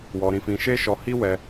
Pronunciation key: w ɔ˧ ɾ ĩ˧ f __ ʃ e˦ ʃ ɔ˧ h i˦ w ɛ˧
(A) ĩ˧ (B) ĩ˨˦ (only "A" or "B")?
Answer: A